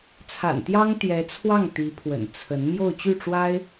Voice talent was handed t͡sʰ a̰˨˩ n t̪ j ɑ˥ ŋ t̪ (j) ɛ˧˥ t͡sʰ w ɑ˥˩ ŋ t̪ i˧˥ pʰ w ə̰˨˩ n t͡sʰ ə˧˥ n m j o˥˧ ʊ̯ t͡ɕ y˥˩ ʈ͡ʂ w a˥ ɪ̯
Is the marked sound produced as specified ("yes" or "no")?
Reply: yes